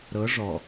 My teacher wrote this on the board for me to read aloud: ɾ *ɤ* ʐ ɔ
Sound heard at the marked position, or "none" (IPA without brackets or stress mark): ɤ